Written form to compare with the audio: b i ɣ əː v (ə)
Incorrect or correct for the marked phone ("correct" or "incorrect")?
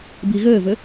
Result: correct